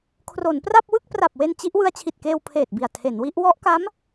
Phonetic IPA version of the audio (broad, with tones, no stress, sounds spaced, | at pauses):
kʰ r o˩˦ n p r a˥˩ p̚ w ɯ˥˩ k̚ p r a˨˩ p̚ w e˧ n t͡ɕ i˦˥ ʔ w ɯ˧ a̯ t͡ɕʰ i˨˩ t̚ k eː˧ w pʰ eː˨˩ t̚ b i˨˩ a̯ tʰ e˩˦ n w i˦˥ ʔ w ɔ˦˥ ʔ k a˦˥ m